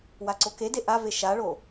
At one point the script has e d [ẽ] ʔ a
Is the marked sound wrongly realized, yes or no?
yes